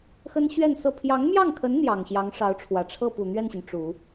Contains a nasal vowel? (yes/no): no